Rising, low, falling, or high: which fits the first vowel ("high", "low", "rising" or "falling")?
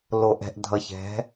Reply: low